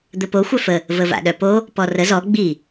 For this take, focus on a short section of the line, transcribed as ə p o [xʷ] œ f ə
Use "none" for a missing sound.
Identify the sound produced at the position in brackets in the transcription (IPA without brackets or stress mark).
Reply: xʷ